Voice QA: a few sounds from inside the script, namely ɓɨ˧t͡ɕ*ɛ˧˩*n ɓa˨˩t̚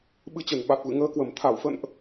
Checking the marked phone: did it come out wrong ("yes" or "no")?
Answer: yes